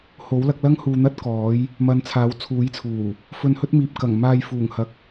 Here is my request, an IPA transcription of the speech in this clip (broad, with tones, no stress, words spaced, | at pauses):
ho˨˥wlɐ˨˥k̚lɐ˥ŋ huː˧n̪ɐ˥t̚kɔː˨˥j | mɐ˨n t͡sʰaː˨˥wt͡sʰuː˨˥jt͡sʰuː˨˩ | fɵ˧nhɵ˥t̚miː˨p̚ kɐ˨˩ŋ maː˧jfuː˨˩ŋ hɐ˨k̚